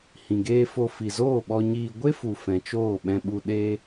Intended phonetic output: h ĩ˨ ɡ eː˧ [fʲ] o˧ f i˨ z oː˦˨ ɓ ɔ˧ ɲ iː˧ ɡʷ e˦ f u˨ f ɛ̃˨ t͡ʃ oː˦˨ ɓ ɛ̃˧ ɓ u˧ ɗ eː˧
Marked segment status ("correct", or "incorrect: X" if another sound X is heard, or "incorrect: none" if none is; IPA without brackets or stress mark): incorrect: f